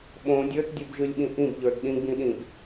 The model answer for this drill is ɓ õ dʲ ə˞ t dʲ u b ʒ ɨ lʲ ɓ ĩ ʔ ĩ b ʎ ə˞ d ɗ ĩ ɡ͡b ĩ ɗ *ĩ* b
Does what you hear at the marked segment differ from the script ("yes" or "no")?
no